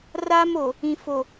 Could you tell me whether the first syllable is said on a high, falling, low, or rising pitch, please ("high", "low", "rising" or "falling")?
high